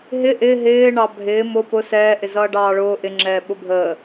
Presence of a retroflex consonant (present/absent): present